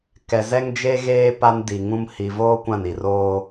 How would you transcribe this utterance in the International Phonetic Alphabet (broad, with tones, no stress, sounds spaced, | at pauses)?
k ɛ˨ z ɛ˦ ŋ d͡ʒ e˦ ɣ eː˦ p a˦ n d i˨ ŋ ũ˦ m h i˨ v oː˦ kʷ ã˦˨ n i˨ r oː˦